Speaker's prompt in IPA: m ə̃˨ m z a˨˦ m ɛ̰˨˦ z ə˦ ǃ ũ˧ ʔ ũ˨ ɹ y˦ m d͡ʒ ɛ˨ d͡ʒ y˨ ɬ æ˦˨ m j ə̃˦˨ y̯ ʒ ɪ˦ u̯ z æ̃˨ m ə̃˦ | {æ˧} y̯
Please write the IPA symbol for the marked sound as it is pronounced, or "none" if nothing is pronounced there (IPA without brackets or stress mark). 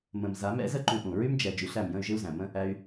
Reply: æ˧